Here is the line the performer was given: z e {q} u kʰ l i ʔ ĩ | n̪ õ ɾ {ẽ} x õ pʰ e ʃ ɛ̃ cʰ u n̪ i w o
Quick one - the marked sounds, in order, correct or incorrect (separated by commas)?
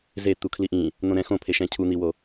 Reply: incorrect, incorrect